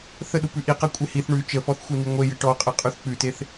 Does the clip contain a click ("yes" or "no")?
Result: no